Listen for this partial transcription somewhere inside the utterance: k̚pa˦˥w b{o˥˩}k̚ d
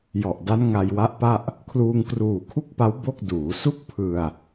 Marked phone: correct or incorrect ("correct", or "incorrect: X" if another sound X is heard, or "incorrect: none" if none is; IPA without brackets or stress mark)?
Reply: correct